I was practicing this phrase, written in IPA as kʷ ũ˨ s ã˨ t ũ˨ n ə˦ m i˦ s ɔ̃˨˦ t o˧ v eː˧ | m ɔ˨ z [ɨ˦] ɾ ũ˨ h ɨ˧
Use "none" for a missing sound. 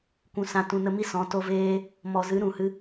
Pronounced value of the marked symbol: ɨ˨˦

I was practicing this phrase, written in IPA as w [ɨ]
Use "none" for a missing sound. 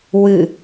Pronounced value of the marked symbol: ɨ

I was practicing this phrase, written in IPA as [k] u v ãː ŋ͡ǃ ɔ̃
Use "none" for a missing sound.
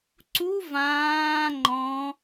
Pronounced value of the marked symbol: ǀ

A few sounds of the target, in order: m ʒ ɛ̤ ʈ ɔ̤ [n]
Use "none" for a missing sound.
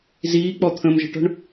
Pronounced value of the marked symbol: ɳ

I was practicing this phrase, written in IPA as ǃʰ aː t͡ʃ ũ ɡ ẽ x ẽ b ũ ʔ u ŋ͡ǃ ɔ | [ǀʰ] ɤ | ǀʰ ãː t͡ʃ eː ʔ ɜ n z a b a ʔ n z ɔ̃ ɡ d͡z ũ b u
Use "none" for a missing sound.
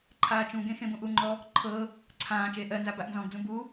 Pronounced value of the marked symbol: ǃʰ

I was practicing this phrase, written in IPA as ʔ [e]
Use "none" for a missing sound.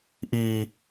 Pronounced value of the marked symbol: i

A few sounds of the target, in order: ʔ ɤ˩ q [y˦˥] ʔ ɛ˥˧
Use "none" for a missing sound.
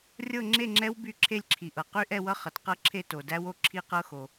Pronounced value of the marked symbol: y˦˥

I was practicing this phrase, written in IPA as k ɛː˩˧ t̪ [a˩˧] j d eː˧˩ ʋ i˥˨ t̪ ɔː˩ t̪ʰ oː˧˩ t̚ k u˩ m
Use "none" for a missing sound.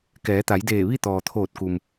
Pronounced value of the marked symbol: a˩˧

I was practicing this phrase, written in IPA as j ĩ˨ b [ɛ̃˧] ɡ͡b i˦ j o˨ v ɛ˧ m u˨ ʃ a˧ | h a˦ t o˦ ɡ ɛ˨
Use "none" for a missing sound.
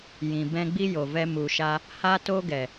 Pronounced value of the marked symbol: ɛ̃˦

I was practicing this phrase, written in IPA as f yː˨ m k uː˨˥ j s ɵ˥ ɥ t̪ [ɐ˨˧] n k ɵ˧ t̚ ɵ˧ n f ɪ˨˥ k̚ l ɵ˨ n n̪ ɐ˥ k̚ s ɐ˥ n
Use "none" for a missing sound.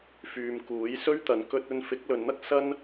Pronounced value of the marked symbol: ɐ˨˧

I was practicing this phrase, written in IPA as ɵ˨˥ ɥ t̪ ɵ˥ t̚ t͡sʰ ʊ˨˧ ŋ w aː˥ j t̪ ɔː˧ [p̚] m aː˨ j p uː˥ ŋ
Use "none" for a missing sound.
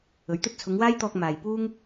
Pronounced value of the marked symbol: k̚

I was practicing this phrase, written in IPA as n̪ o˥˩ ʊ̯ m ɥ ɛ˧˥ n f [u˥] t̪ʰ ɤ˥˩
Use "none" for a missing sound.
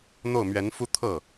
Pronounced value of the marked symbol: u˥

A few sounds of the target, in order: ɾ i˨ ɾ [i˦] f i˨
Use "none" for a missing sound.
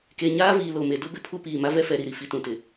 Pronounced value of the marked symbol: i˨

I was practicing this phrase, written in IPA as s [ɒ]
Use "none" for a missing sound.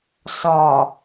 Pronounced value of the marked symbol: ɒ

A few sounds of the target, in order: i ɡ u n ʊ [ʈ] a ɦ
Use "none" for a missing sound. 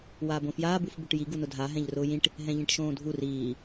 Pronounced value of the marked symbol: dʱ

